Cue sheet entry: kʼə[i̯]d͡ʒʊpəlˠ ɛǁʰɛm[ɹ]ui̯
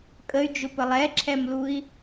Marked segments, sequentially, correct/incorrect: incorrect, incorrect

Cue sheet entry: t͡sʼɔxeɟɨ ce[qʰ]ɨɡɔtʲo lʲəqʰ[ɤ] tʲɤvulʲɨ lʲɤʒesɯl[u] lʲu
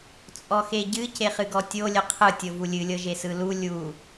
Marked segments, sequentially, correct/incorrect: incorrect, incorrect, correct

